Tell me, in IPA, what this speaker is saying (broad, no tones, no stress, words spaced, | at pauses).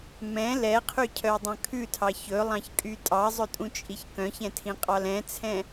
mɛ̃ lɛqʰycʰœdˤœ̃ kʰʉtʰɑ çɵlˠɑ̃çkʼy tʼɑzˤɵtʼũt͡ʃʼiç kœ̃çɛ̃tʰĩqʼɑl ɛ̃t͡sʰɛ̃